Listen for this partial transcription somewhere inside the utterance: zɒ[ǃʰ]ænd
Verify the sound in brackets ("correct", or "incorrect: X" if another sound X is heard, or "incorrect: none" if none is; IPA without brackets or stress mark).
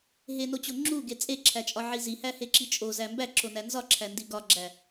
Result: incorrect: ǁʰ